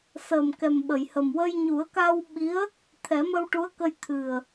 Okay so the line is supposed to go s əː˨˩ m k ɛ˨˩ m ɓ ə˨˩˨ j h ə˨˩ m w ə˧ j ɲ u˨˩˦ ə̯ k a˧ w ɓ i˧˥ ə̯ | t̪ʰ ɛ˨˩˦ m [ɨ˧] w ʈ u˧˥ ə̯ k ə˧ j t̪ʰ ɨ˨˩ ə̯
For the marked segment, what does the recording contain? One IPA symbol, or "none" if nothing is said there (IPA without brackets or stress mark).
ə˧